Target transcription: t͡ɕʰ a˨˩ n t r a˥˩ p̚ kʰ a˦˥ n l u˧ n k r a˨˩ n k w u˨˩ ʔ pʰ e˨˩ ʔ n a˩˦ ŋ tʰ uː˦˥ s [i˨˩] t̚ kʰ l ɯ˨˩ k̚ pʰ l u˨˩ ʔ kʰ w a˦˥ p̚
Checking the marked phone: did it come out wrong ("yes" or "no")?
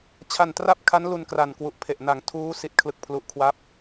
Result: no